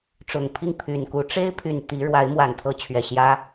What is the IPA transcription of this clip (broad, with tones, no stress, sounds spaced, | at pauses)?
ʈ͡ʂ ʊ˨˩ ŋ pʰ i˥˩ ŋ pʰ y˨˩ n k u˧˥ ʈ͡ʂ e˥ ɪ̯ pʰ y˨˩ n t̪ i˧˥ ɻ w a˧˥ ɪ̯ m w a˨˩ n t̪ʰ ɤ˧˥ t͡ɕʰ ɥ ɛ˨˩ ɕ j ä˥